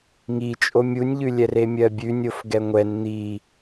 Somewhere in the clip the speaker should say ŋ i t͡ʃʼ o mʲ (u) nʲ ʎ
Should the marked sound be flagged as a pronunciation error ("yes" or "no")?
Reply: no